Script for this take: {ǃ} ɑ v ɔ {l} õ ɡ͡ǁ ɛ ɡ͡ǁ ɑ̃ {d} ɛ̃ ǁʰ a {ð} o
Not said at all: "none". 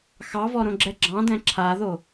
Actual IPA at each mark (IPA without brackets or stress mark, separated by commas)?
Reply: x, ɾ, d, ð